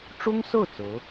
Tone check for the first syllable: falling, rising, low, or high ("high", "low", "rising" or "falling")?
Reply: high